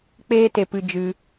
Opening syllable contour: high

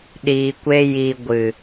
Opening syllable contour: low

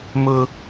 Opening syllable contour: high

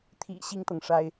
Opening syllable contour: low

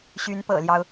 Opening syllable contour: rising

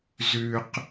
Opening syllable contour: low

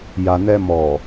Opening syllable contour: low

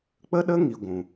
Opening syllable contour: high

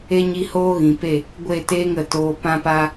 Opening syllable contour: high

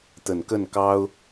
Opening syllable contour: low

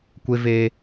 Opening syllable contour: high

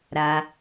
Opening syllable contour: low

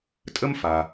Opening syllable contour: high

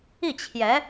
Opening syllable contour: falling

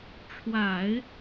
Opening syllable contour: low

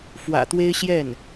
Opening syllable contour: low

